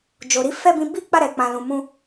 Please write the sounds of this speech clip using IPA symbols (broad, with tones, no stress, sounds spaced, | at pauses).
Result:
d͡ʒ o˨ ɾ i˨˦ f ɛ˦˨ b ĩ˧ b i˦ k͡p a˦˨ ɾ ɛ˨ k͡p ã˨ l ũ˨ m ũ˧